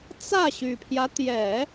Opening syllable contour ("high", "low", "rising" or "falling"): falling